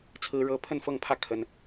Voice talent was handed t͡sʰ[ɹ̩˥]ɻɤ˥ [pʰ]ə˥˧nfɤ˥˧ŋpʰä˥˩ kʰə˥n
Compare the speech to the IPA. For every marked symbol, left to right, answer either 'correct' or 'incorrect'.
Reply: correct, correct

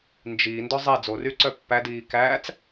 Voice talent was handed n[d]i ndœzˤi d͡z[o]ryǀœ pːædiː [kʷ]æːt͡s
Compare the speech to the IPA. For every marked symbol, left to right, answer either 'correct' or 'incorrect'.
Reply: incorrect: d͡ʒ, correct, incorrect: k

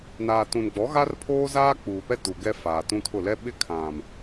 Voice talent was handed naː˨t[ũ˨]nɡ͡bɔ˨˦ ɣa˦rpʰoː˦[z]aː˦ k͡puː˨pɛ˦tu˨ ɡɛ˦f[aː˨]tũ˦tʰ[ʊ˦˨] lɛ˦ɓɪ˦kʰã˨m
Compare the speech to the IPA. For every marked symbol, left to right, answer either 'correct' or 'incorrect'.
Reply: correct, correct, correct, correct

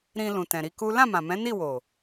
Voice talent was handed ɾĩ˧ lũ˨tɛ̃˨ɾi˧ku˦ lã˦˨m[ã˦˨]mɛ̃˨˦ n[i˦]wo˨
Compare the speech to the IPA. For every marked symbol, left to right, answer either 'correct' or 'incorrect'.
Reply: incorrect: ã˨, incorrect: i˦˨

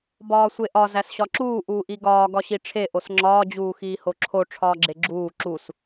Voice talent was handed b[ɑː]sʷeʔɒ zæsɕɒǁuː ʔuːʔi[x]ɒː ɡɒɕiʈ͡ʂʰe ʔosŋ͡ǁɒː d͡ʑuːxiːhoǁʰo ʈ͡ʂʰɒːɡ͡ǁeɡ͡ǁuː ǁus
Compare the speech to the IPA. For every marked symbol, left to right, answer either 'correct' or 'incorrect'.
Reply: incorrect: ɒː, incorrect: ɡ

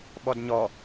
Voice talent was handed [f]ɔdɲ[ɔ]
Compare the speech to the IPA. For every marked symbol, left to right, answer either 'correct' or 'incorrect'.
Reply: incorrect: ɓ, correct

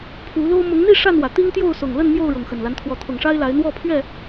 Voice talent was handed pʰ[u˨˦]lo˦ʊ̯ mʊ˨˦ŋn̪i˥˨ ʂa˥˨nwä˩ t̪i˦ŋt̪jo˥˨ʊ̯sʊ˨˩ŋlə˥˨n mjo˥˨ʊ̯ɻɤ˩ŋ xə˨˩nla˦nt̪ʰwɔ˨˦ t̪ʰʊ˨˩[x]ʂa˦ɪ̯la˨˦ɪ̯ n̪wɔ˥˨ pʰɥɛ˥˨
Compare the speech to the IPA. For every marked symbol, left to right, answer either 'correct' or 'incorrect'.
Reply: correct, incorrect: ŋ

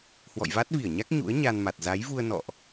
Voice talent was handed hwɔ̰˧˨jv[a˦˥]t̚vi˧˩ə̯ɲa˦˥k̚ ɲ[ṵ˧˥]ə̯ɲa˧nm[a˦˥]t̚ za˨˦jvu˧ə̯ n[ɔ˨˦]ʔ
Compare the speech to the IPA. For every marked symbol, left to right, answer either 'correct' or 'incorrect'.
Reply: correct, correct, incorrect: a˨˩, incorrect: ɔ̰˧˨

